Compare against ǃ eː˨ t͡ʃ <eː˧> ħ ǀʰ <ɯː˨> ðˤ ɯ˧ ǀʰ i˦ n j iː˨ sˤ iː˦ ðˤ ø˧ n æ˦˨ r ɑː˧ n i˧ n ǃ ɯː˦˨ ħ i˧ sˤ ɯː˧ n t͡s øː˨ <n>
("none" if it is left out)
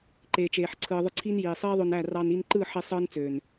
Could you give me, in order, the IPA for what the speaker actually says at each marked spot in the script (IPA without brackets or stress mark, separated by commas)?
eː˨, ɯː˨, n